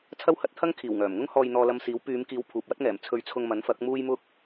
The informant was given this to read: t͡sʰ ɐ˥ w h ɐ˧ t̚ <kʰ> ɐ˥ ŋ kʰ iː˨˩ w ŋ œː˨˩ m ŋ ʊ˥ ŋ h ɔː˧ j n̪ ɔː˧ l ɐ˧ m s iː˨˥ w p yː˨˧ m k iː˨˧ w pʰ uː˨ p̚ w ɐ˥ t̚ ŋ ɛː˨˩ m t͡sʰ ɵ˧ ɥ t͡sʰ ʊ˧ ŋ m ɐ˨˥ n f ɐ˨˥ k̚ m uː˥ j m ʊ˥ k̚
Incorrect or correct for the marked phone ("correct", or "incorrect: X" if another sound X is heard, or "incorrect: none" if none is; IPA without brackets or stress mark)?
incorrect: t̪ʰ